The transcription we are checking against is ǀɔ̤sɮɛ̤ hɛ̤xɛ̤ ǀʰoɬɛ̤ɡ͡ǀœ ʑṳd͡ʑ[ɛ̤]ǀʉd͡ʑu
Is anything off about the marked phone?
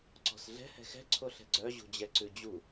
yes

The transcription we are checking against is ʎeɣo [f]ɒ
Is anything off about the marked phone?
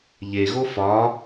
no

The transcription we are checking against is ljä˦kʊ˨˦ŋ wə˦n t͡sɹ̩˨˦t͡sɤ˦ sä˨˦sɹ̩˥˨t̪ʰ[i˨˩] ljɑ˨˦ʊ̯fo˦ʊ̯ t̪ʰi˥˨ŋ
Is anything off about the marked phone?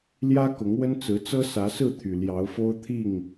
yes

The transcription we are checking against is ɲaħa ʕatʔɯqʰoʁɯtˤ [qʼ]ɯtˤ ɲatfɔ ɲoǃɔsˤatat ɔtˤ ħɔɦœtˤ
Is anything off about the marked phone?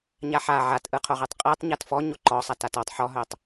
no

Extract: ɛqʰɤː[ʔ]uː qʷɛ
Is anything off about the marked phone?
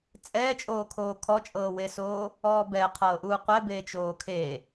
no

